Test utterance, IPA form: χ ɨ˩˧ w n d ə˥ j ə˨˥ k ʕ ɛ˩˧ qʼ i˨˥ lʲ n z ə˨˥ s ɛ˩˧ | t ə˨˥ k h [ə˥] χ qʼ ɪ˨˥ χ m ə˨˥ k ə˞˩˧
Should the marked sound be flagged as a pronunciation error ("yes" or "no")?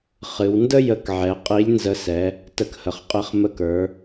yes